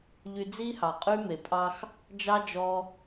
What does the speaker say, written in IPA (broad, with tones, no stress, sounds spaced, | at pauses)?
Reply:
ʎ y˧ d͡z i˦ h ɑ˨ qʼ y˦ m e˨ pʼ ɑ˦ x | d͡ʒ ɑ˦ d͡ʒ ɔ˧